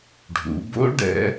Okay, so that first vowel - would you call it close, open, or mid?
close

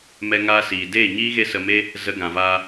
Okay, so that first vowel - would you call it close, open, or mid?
mid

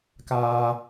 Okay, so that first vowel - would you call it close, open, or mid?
open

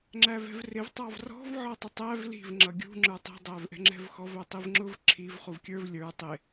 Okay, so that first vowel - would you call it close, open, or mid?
open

